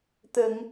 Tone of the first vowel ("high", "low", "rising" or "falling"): low